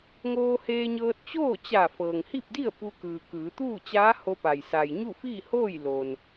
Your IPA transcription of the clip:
ŋ oː˧ h eː˧ ɲ ɤː˧ t̚ t͡ɕ oː˥˨ t͡ɕ a˧˩ f ɤː˩ ŋ h i˥˨ p̚ d i˥˨ ə̯ p u˧ k ɯː˩ k ɯː˩˧ t̪ uː˥˨ t͡ɕ aː˧˥ h o˧ p a˩ j s a˩ j ɲ u˥˨ f iː˥˨ h oː˥˨ j l o˩ n

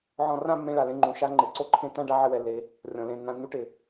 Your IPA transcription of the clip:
ʕ ɔ̃˧ r ã˥˧ mː ẽ˧ ɭ a˩ l ẽ˧ ŋ͡ǃ ũ˩ ʃ a˥˧ ŋ͡ǃ e˩ ǀ o˥˧ ǃʰ ẽ˥˧ t ã˥˧ ɖ a˥˧ ʕ ɪ˧ w ɛ˩ lː e˩˧ | rʲ ɔ̃˩ l ẽ˩˧ nː ã˩˧ nː u˧ ʈ ɪ˩

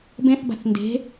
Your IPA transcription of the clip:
b ẽ θ b a̤ θ n d e̤

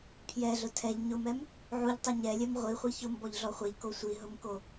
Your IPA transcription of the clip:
pʰ j ɛ ɮ ʊ tʰ ɛ ʎ ɲ ʊ m ɛ m | ʕ u ʎ tˤ u ɲ ɛ lʲ ɛ m ʁʷ i χʷ i ç ʊ m b ɔ ʎ ɮ ɔ χʷ e ʎ k o sʷ i ɦ ʊ m k o

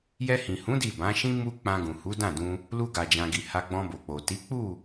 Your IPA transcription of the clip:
j ɛ˧ h ĩ˨ h ũ˨˦ d i˦˨ b ã˨˦ ʃ ĩ˦ m u˧ k͡p ã˧ ɡ ũ˨ h u˨˦ d ã˦˨ d ũ˧ | l u˧ ɡ a˨ d͡ʒ ã˨ ɡ i˨ h a˧ ɡ͡b ɔ̃˧ b o˨ k͡p o˨ t i˨˦ k͡p u˦˨

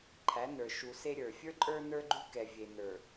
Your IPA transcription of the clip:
ǃʰ æ˨˦ n ə˞˨ ʃ u˨ s e˦ ɾʲ ə˞˨ fʲ ə˞˦ ǃʼ ə˞˦ n ə˞˦ ɡ͡ǃ ʉ˦ k ɛ˨ vʲ e˨ n ə˞˨

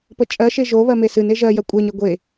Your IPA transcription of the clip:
p ə t͡ʃʼ ɜ ʃ e ʒ o β ɜ m e s ɨ n e ʒ ɜ j ɜ kʷʼ ɜ ɲ ɜ ɡʷ e

